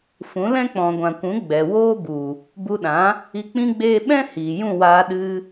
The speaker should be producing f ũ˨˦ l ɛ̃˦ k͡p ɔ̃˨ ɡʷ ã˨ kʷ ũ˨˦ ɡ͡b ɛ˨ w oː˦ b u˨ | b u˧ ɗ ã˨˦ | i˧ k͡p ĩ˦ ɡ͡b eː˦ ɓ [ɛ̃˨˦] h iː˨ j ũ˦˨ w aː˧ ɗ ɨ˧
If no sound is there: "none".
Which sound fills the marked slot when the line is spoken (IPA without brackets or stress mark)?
ɛ̃˦